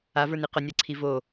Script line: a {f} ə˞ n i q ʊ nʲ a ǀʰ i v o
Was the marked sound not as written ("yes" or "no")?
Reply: yes